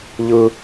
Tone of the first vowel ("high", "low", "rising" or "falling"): high